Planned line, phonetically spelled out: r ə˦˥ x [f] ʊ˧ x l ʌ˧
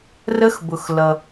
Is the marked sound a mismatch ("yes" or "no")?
yes